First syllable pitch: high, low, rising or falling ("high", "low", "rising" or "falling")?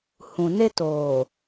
low